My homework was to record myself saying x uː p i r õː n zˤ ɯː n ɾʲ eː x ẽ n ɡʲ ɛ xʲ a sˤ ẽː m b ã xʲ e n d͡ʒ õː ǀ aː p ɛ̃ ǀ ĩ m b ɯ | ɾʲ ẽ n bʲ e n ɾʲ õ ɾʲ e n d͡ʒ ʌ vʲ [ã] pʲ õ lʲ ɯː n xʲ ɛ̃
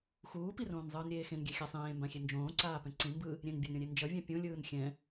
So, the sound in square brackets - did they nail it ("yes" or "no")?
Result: yes